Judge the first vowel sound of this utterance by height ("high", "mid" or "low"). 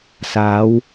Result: low